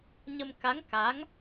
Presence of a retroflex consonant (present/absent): absent